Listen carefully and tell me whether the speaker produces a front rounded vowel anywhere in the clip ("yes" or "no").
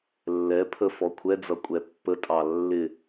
no